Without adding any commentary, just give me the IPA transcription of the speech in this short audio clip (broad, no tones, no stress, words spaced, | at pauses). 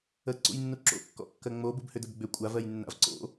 əǀṵjnːu ǁo̰kːɔ̰kːɜ ŋ͡mobubhʏdəb ɡ͡bʏ kʷʼavɜjnːa̰v ǀo̰